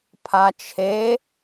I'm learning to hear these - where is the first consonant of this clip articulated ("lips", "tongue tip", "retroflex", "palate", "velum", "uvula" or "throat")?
lips